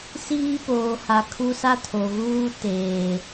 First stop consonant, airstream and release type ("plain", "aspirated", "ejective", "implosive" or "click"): plain